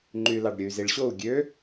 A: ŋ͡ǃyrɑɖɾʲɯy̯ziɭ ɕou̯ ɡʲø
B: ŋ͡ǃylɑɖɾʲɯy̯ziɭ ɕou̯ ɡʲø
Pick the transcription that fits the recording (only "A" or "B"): B